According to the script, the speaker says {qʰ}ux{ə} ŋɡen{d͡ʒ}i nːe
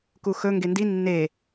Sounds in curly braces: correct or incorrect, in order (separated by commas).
incorrect, incorrect, incorrect